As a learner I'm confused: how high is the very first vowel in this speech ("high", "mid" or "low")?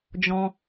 mid